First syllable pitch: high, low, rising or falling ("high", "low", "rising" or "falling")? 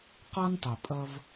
high